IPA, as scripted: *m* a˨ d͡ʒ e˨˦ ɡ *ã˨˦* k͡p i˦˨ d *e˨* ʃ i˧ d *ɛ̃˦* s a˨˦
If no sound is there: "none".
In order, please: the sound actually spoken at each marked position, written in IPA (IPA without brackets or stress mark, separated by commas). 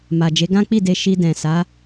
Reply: m, ã˦, e˧, ɛ̃˨